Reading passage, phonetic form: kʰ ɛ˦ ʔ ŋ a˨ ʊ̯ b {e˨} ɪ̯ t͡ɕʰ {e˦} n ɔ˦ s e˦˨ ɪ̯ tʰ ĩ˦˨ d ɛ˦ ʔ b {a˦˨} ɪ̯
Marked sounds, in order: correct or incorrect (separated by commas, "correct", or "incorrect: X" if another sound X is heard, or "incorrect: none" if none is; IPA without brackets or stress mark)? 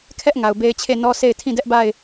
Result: incorrect: e˦, incorrect: e˦˨, correct